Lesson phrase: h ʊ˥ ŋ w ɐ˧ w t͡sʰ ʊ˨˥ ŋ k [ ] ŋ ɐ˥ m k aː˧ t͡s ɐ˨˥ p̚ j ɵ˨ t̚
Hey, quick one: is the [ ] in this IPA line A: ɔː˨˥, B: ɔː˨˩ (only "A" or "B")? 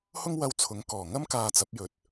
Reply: B